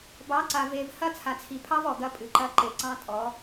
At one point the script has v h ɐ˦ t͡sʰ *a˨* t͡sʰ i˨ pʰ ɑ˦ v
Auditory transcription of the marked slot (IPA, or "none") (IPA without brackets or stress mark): a˨